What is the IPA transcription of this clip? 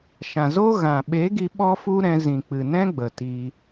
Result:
ʃ ã˨ z o˦ ɣ ã˨ ɓ e˨˦ ɡ i˧ ɓ ɔ˦ f u˦ ɾ ɛ̃˧ z ĩ˨ k͡p ɨ˨ n ɛ̃˦ ɡ͡b ə˨ t i˧

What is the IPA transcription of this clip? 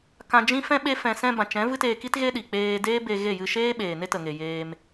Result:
k ã˧ d͡ʒ ĩ˦ f ɛ̃˦ ɓ e˦ f ɛ̃˧ s ɛ̃˧ b ã˨ t͡ʃ ɛ̃˨˦ v ɨ˦ t eː˧ k i˦ t ɣ e˦ ɗ i˨ k͡p eː˧ d eː˦ b e˧ ɣ e˦˨ j ɨ˧ ʃ eː˦ ɓ eː˨ n e˦ t ə˨ ŋ e˨ j eː˧ m

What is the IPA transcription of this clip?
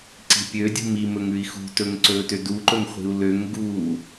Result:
ǀ i̤ pʲ ø dʲ ṳ m i m ɵ ŋ ʉ i̯ x ṳ t ɵ ŋ ǀ ɵː t ø d u ǃ ɵ ŋ χʷ i̤ u̯ l ø ŋ ɡ uː

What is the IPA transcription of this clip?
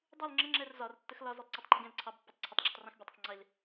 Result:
dˤ u l ŋ͡ǁ ə ŋ͡ǁ ɛ r z ɒ r tː ə x l ɒ z u tˤ ǀ ɑ tˤ ŋ͡ǃ ʊ ɡ ɛ̃ l ǀʰ ɑ b pː ɒ tˤ ǀʰ ʊ tˤ ɡ͡ǁ ə tˤ r ɛ̃ x bʲ ɒ tˤ ʌ tˤ ŋ͡ǀ ɪ l

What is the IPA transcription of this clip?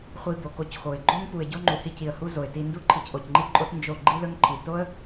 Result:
χʷ i˧ b o˨ k o˧ c x o˨ ɪ̯ ɡ͡ǃ o˦ ŋ p u˨ ɪ̯ ɟ o˦ ŋ͡ǃ u˨ h i˧ c i˨ ə̯ h u˧ z o˨ ɪ̯ t i˧ n d u˦ ǃʰ i˨ c ʔ o˨ c ŋ͡ǃ i˦ ǃʼ o˦ t n d͡ʒ o˦˨ ɡ͡ǃ i˦ l ɵ˦ ŋ ǃʰ i˨ t o˦ ə̯

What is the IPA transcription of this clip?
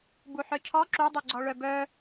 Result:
b u ħ œ cʰ ɔ ǁ u dˤ u ɡ͡ǀ ɔ ɭ œ b œ

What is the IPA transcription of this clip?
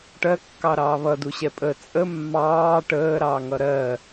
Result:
ʈ ɜ kː ɑ ɾ ɑː β ʌ d u ɕ ɛ pʼ ə t͡sʼ ə mː ɑː ʈ əː ɾ ɑ ŋ ʌ ɾ ɜ

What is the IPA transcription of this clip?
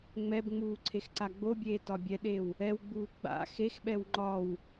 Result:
ŋ͡m ɛ b ŋ͡m uː ǀʰ e x ǀ a ɡ͡b o bʲ eː t ɒ bʲ ɛ ɗ e w | ɛ w ɡ͡b uː ɡ͡b a̰ x e x ɓ ɛ w ŋ͡ǃ ɒ w

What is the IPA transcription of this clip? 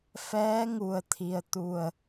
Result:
f ɛː˧˥ ŋ u˩ ə̯ t̪ʰ i˩ ə̯ t̪ u˧˩ ə̯

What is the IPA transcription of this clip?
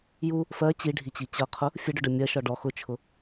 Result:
j u | f ɜ t͡ɕ i ɖʱ i t͡ɕ i t͡ɕ ʌ qʰ ʊ | fʲ ə ɖ ʊ ɖ ɜ mʲ ɜ ʃ ɒ ɖ ɔ x ʊ t͡ʃʰ ʊ

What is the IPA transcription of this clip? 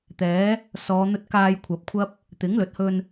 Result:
t̪ ɛː˨˥ | s ɔː˨˧ n̪ ɵ˧ t̚ k aː˧ j kʷʰ ɐ˨ p̚ kʷʰ ɐ˥ p̚ | t̪ ɪ˨˥ ŋ l ɵ˨ t̚ h ɵ˧ n

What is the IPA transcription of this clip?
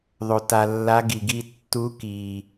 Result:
ðˤ o˨ t a˨ lː a˧˥ ɡ i˨ ɡ i˥˧ tː u˧˥ k i˨

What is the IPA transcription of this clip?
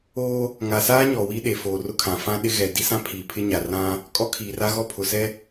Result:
oː˦ | ŋ a˨ s aː˦ ɲ ɔ˨ w i˦ ɗ e˨ f oː˨ r ʊ˦˨ kʰ ã˨ f ã˦ ɗ ɪ˦ ɣ ɛ˨ d i˦ s ã˦ pʰ iː˨ pʰ ɪ˦ ɲ a˨ r ã˦ | kʼ ɔ˦ kʰ iː˨ r a˦ ɣ ɔ˦ pʰ ʊ˨ s ɛ˦

